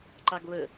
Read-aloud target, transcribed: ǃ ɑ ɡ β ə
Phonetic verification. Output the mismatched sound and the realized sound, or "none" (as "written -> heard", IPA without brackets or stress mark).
none